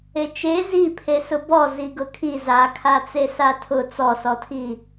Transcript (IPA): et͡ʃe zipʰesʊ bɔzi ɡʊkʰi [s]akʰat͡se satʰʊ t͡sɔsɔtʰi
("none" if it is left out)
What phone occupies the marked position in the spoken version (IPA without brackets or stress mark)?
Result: z